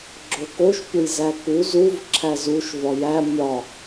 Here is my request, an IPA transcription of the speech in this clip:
ɡ͡ǁ o k o ʃ pʲ o j z æ k u z u v ǁʰ æ z u ʃ v ɒ j æ mʲ ɒ

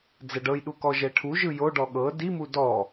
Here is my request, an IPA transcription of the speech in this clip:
d͡z ɛ ɖ ɤ j ɗ u k ɔ ʒ ɛ ʈʰ u ʒ ɯ j o ɖ ɔ ɠ ɤ d i m u d ɔ

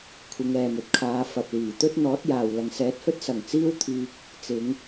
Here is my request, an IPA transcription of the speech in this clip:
kʷʰ ɪ˨˧ ŋ ɛː˨ m ɵ˨ t̚ kʰ aː˨˧ f ɐ˨ p̚ l iː˨˩ t̪ ɵ˥ t̚ n̪ ɔː˨˥ t̚ j aː˨ w l ɐ˨ ŋ s ɛː˨˥ t̚ h ɵ˥ t̚ s ɐ˨˩ ŋ t͡s iː˥ w t̪ʰ iː˧ k̚ | t͡s ɪ˨˧ ŋ

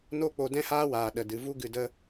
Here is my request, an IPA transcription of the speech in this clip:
n o˦ k͡p o˧ d ɛ̃˦ h aː˦ w aː˨ ɗ ə˨ d ɨ˨ v u˦ ɡ ɨ˧ d ə˦

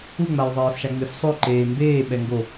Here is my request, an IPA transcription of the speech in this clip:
u ŋ͡m a j ðˤ ɛː f ʃ a ŋ͡m e f sˤ o ǃ eː m b eː ɓ ɛ ŋ ɡ o

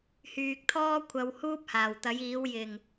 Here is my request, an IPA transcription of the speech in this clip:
h yː˨ k̚ t̪ʰ ɔː˥ kʷʰ ɐ˨˧ w h uː˥ p̚ h aː˨˩ w t̪ ɐ˨˥ j iː˨˥ w j ɪ˨˩ ŋ

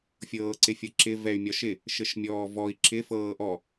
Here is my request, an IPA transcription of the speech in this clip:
fʲ ɤː ǀ ɪ fʲ ɤ ǁ ɪ v ɛ y̯ mʲ ɒ ʃ ɪ | ʃ ɘ ʃ mʲ ɔː v ɔ i̯ ǁʰ ɪ f ɤː ʔ ɔ

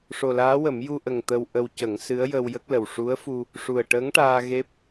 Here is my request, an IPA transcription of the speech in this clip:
ʂ o˨˩ l aː˧˥ w ə˨˩˦ m j u˧ ʔ ə˨˩ ŋ t̪ ə˧ w ʔ ə˧ w c ə˨˩˦ ŋ s ɨ˧˥ ə̯ j ə˧ w j ə˦˥ k̚ l ə˨˩ w ʂ u˧˥ ə̯ f u˧ | ʂ u˨˩ ə̯ ʈ əː˧˥ ŋ ʈ aː˧ ɣ e˦˥ p̚

